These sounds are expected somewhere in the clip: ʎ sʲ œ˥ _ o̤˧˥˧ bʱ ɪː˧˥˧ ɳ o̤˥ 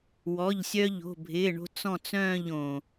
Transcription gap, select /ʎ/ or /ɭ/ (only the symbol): ʎ